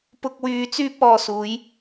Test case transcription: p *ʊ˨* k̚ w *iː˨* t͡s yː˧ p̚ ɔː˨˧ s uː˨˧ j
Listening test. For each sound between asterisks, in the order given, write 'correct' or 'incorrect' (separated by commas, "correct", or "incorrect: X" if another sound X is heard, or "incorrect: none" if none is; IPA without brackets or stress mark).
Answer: correct, incorrect: yː˨